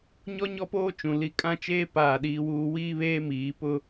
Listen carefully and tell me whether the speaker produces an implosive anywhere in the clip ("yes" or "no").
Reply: yes